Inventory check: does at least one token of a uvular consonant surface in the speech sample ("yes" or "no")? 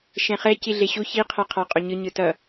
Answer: yes